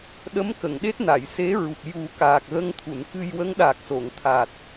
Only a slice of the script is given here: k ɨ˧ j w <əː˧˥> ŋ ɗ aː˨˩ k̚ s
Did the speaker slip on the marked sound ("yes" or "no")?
yes